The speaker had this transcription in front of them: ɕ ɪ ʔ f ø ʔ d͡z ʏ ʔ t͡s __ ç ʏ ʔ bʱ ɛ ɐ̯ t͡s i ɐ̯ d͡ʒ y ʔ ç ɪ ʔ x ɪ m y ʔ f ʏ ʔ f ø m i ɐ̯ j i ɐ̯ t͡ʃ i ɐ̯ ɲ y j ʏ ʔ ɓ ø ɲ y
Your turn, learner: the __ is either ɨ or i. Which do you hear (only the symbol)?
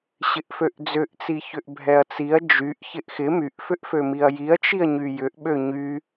i